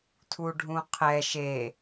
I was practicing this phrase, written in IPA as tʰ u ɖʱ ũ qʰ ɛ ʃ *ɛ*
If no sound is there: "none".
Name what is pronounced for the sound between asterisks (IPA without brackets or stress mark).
e